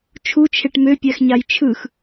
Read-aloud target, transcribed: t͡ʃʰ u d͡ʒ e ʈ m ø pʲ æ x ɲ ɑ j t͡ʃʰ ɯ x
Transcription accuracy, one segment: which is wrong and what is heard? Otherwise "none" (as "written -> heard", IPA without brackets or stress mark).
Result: d͡ʒ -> t͡ʃʰ